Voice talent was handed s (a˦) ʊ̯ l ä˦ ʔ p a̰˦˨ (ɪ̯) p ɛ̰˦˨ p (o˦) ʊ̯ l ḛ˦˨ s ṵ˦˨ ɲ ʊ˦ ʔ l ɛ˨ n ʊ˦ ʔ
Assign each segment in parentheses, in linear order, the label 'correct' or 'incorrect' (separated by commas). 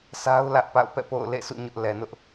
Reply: correct, incorrect, incorrect